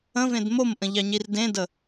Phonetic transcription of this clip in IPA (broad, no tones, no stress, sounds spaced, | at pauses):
ə̃ v ẽ d m o m ʔ ə̃ ʎ ɑ ɲ i r d ẽ d ə